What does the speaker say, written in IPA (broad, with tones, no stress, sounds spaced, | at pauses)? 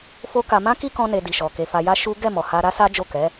f o˦ k a˧ m ã˦ k i˦ k ɔ̃˧ n e˧ d i˨ ʃ ɔ˨ k e˧ f a˧ j a˦ ʃ u˦ ɡ ɛ˦˨ m ɔ˨ h a˧ ɾ a˦ s a˦ d͡ʒ o˦˨ k ɛ˨˦